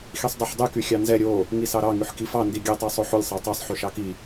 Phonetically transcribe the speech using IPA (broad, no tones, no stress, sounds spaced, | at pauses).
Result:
x i sˤ dˤ o ħ dˤ y k y xʲ ɑ n z ɛ ɾʲ o | ŋ i s ɑ ɾ ɑ ŋ y ħ k i f ɑ n d i ɡʲ ɛ tˤ ɑ sˤ o ħ o lʲ sˤ ɑ tˤ ɑ sˤ ħ y ʃ ɑ k i